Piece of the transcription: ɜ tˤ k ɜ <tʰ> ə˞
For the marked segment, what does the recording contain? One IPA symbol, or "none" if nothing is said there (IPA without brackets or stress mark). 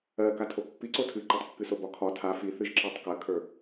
kʰ